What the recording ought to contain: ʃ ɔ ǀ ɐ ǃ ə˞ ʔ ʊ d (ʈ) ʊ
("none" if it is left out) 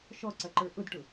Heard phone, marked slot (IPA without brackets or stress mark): ʈ